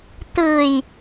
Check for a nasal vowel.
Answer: absent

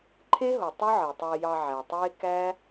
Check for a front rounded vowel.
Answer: absent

